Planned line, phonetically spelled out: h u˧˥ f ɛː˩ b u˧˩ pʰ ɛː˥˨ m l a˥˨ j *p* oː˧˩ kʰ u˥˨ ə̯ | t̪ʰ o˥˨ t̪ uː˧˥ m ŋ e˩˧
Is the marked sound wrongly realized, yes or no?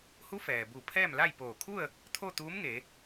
no